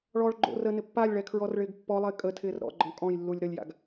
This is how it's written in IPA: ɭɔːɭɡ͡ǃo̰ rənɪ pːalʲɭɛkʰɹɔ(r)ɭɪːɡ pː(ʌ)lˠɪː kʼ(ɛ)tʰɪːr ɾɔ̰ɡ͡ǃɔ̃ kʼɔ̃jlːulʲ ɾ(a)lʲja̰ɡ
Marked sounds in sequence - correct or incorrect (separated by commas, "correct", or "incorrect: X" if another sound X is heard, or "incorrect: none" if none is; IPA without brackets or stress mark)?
correct, incorrect: ɔ, incorrect: ə, incorrect: ə